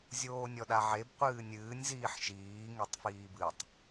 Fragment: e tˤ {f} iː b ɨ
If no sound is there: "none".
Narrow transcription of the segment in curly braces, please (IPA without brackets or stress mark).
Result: f